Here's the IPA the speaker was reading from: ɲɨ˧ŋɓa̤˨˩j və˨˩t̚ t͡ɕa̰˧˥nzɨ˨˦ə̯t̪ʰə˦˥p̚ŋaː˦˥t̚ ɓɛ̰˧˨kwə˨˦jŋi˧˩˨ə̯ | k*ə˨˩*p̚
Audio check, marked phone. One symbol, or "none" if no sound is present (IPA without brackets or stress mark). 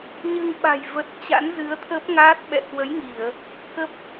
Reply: ə˦˥